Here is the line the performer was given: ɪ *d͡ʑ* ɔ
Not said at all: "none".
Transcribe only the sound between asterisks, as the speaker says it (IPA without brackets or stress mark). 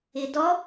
d